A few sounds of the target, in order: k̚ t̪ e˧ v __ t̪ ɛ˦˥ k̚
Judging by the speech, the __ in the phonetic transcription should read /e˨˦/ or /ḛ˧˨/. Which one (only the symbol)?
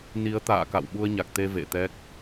ḛ˧˨